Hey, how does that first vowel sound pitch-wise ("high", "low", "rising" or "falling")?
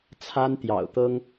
high